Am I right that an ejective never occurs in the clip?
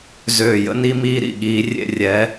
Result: yes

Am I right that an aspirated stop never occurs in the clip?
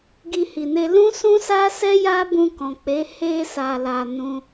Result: yes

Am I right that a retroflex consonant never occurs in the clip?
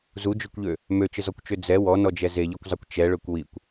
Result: no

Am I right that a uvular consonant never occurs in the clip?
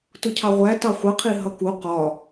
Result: no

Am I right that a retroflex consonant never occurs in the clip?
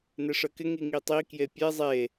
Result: no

